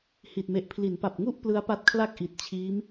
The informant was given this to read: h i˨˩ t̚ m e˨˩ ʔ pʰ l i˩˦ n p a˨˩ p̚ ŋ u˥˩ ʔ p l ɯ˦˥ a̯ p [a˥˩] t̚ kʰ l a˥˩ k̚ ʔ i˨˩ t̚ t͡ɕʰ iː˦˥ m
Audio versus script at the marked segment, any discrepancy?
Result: yes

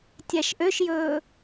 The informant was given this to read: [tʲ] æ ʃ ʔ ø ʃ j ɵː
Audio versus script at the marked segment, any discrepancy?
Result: no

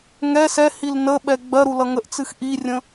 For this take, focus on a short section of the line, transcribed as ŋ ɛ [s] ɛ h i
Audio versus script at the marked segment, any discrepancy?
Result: no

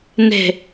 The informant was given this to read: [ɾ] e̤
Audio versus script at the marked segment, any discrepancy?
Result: yes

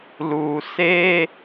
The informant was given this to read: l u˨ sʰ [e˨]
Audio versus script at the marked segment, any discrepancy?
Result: yes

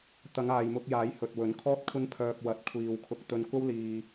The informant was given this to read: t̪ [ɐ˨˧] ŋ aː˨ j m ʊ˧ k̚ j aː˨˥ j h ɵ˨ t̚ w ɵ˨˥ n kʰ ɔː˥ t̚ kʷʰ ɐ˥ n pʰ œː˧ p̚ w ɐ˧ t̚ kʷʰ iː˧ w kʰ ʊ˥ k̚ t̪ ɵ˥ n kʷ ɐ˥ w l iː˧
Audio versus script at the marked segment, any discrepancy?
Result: no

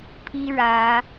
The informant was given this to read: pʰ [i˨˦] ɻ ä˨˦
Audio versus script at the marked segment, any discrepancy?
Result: yes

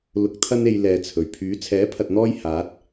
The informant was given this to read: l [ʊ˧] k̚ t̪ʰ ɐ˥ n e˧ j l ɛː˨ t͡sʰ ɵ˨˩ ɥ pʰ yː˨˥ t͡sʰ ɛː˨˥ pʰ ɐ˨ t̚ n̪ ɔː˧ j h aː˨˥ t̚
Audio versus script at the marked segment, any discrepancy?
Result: no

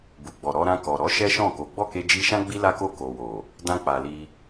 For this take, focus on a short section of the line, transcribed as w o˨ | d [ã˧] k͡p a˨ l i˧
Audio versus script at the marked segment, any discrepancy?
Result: no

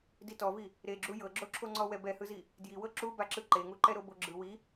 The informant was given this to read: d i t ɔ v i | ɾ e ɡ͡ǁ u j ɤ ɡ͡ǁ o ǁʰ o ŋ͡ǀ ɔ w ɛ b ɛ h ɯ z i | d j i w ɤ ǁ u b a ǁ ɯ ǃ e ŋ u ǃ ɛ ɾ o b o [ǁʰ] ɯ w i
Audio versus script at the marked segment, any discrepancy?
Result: yes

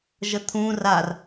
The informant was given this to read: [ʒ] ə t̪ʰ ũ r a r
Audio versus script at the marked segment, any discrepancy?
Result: no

